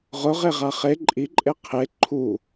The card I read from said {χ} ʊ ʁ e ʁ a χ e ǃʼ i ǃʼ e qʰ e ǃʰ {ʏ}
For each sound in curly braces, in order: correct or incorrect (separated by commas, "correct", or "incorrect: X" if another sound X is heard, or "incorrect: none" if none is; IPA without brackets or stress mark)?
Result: incorrect: ʁ, incorrect: u